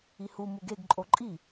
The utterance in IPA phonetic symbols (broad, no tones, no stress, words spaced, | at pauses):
ihu muɡeɡ ǃʼoǃʼi